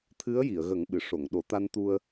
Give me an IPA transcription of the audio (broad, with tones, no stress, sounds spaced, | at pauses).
t̪ʰ ɨ˧˥ ə̯ j i˨˩˨ ə̯ ɣ ə˨˩˦ ŋ ɓ ɨ˨˩˨ ʂ o˨˩˨ ŋ ɗ o˨˩˦ t̪ a˧ n t̪ u˧ ə̯